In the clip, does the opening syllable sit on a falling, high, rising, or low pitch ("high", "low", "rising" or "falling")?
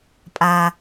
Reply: low